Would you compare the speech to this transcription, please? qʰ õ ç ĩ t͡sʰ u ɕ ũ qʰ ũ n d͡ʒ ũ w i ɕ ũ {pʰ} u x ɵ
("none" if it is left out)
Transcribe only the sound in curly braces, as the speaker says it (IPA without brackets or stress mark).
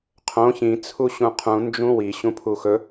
pʰ